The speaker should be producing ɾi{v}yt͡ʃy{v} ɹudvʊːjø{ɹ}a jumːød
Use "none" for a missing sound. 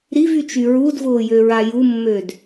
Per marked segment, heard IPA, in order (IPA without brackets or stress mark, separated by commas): v, none, ɹ